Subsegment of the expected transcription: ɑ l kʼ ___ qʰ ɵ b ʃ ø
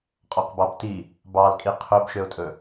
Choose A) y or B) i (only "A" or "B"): B